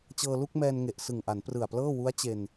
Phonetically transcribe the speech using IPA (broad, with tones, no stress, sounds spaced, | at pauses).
t͡ɕ ɤː˧ l u˥˩ k̚ m ɛː˧ n ŋ e˨˩ ʔ s ɯ˨˩ ŋ ʔ a˩˦ n p r ɯ˨˩ a̯ p l ɤː˥˩ w u˦˥ a̯ t͡ɕ e˧ n